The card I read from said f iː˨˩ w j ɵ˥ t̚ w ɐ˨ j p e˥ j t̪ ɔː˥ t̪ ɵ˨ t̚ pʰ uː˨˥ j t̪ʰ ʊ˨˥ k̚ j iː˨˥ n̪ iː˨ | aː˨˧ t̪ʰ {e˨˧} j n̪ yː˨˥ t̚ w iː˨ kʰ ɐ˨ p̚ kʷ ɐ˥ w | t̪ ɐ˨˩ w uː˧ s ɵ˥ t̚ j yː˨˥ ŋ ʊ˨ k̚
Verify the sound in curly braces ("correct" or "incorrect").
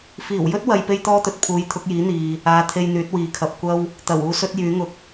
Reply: incorrect